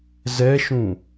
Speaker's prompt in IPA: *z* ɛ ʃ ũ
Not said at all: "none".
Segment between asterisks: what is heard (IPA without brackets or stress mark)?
z